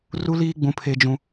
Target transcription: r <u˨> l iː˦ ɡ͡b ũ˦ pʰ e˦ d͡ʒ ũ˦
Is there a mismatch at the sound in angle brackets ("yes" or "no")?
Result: yes